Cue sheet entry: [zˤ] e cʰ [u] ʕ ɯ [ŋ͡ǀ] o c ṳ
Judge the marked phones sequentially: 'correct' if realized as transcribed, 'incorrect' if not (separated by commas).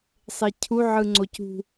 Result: incorrect, correct, correct